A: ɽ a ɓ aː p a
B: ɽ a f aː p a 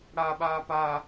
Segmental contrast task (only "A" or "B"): A